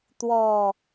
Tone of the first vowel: low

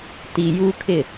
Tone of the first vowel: low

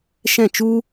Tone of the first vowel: falling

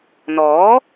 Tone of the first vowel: rising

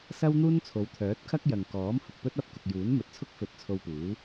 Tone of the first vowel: high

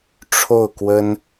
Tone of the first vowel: falling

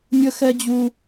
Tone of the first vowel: high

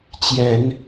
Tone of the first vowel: rising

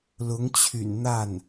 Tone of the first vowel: rising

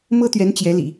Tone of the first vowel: high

